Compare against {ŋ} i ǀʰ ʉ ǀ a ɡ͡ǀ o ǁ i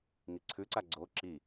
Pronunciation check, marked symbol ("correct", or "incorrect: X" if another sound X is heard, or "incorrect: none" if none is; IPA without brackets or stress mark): correct